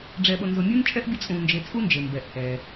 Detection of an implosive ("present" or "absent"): present